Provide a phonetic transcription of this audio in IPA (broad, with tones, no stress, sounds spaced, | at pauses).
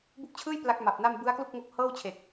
b u˦˥ k̚ t͡ɕʰ ɯː˥˩ j p l a˦˥ k̚ m a˨˩ p̚ n a˥˩ m b ɯ˦˥ a̯ k l u˥˩ k̚ ŋ o˦˥ k̚ h ɤː˥˩ w t͡ɕʰ e˨˩ k̚